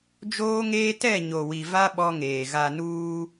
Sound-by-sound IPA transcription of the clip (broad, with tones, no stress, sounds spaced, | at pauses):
d͡ʒ oː˦ ŋ eː˦ t ɛ˦˨ ɲ o˨ w i˨ v a˦ ɓ ɔ˦ ŋ eː˨ ɣ a˨ n uː˦